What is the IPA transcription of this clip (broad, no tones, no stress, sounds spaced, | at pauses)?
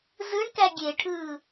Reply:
z ɯ ɳ k æ ɡʲ e ʈʰ ɯː